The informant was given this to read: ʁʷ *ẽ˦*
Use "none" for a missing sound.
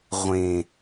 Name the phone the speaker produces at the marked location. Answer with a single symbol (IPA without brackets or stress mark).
ẽ˨